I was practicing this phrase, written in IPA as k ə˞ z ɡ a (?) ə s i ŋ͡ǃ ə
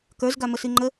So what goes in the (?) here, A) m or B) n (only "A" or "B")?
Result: A